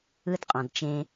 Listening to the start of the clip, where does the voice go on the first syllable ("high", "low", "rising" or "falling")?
high